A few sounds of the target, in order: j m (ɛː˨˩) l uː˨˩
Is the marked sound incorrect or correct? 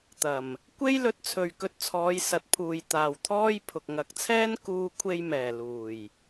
correct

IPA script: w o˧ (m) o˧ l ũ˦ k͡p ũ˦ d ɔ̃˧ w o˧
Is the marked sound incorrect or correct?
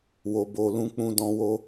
incorrect: b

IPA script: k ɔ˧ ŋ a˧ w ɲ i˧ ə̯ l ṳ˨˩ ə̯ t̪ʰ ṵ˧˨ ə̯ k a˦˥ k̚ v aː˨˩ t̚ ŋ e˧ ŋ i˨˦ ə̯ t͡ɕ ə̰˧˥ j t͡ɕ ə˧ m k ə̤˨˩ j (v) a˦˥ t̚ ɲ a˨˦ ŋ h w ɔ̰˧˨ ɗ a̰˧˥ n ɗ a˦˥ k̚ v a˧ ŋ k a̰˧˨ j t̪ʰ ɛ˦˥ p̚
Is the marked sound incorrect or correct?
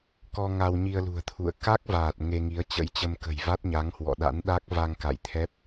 correct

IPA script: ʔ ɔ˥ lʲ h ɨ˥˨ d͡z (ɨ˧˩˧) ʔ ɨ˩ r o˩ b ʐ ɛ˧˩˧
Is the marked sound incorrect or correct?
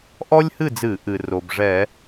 correct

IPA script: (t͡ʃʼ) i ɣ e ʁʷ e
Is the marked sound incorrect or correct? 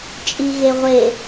correct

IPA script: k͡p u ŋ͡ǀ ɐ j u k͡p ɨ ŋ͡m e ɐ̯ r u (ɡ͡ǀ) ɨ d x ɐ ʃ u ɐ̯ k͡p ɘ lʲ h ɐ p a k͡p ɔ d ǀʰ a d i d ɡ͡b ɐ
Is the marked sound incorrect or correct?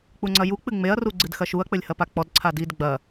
correct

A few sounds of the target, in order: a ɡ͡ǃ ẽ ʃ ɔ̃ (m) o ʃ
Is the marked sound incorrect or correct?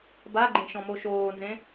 correct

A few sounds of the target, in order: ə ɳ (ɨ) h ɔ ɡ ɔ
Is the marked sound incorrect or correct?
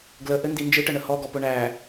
incorrect: ə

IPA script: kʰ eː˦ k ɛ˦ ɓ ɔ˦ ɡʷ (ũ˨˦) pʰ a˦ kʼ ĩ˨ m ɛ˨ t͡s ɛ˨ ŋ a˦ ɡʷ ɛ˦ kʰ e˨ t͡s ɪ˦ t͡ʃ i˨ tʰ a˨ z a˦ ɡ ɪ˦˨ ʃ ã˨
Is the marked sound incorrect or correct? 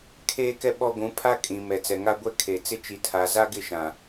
correct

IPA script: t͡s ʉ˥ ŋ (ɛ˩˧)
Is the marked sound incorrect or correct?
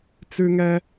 incorrect: ɛ˥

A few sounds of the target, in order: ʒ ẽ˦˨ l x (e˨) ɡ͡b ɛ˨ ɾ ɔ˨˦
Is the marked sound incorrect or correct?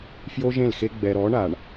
incorrect: e˦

